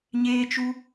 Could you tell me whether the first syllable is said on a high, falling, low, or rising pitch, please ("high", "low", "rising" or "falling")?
high